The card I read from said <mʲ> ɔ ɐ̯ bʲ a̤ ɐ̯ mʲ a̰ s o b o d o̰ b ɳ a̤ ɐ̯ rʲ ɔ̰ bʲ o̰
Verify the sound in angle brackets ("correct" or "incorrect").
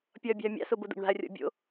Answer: incorrect